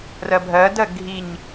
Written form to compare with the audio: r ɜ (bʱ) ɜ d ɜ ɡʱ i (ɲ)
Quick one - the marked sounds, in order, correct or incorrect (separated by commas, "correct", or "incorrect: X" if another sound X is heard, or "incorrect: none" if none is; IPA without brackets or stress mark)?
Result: correct, correct